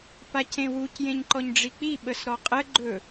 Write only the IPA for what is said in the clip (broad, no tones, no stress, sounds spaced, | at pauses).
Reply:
p a c ẽ w u c j ẽ ɲ ǃ ɔ ɲ ɖ͡ʐ i k͡p i ɓ ə s ɾ ɔ qʼ ə ɡ͡ǃ ɵ